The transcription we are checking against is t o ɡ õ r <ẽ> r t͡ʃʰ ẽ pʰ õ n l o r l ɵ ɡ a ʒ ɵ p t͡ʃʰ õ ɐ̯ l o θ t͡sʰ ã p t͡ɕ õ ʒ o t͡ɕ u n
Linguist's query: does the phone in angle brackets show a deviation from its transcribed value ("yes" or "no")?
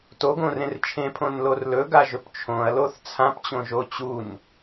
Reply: no